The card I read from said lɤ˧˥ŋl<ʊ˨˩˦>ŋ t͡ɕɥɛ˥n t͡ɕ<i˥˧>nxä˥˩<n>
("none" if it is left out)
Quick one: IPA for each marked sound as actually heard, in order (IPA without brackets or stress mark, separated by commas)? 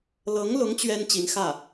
ʊ˧˥, i˧˥, none